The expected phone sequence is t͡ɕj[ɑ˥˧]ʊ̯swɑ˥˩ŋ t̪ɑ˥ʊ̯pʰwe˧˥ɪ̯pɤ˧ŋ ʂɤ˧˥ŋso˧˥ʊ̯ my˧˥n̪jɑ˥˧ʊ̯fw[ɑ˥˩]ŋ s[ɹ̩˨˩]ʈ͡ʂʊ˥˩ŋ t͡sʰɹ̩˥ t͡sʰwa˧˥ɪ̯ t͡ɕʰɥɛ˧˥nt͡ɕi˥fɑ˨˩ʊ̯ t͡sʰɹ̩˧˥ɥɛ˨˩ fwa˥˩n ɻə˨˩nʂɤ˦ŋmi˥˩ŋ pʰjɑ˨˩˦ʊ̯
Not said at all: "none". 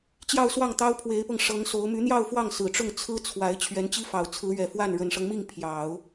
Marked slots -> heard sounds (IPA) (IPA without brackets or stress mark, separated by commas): ɑ˥˧, ɑ˥˩, ɹ̩˨˩